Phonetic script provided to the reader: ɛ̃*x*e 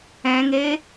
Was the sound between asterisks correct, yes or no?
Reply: no